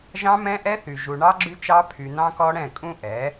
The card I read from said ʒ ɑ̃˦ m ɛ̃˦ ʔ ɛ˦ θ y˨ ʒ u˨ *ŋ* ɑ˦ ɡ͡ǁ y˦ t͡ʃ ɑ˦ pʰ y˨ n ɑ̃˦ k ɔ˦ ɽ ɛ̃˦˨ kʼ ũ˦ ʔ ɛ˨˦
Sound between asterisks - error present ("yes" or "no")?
yes